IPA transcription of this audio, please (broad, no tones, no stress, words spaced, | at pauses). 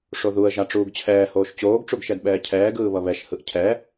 ʂoðuə̯ʒa ʈ͡ʂuːɡt͡ɕʰɛːhoːʃ t͡ɕoːɡʈ͡ʂuɡʃɛdɓɛː cʰɛːɡɯː βʌβɛʃhɯʔ cʰɛ